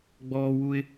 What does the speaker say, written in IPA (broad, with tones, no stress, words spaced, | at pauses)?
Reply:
ɡ͡bɔː˧wu˧ɪ̯